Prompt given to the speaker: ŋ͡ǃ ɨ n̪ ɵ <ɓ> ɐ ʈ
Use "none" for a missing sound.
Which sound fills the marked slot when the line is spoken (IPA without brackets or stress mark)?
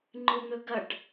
ɡ